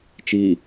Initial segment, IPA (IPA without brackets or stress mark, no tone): t͡ʃ